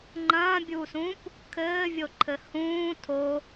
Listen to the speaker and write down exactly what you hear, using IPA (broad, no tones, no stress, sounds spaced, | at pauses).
ŋ͡ǃ ɐ̃ː bʲ uː s ũː p | kʰ ɘː vʲ o ǃʰ ɘ h ũː tʰ o